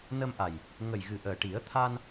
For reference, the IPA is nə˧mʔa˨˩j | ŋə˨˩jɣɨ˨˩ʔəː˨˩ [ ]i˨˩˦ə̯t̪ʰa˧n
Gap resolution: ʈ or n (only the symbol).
ʈ